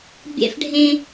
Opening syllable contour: high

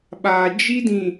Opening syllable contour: low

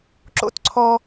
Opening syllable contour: high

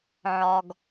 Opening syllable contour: low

